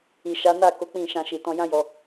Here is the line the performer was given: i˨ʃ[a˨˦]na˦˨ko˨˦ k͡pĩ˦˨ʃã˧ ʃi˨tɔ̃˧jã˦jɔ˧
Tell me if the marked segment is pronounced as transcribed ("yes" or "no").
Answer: yes